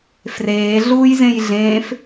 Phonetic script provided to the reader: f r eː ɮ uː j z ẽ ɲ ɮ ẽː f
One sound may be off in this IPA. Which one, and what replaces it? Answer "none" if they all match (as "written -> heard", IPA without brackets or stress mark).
ɲ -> j